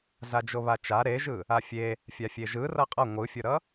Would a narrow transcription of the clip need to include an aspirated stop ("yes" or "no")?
no